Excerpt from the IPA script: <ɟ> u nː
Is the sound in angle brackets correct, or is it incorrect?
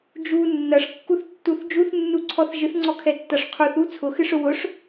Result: incorrect